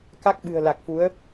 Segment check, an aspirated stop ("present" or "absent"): absent